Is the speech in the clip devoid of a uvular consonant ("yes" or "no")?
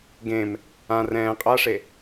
no